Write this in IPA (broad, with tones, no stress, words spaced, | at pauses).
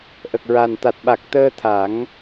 ʔə˨˩k̚ɹa˨˩n t̪a˨˩t̚ɓa˨˩k̚ t̪əː˧t̪ʰa˨˩˦ŋ